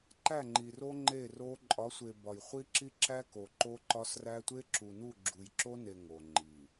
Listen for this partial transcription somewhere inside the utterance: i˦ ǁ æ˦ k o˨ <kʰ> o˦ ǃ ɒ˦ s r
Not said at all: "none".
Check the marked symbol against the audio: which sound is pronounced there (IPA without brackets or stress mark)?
ǃ